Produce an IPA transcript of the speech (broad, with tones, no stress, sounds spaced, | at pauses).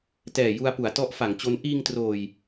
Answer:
t ɛː˨˩ j u˧ a̯ p u˩˦ a̯ t ɔ˦˥ ʔ f a˩˦ ŋ t͡ɕ o˦˥ n ʔ iː˧ ŋ t r oː˨˩ j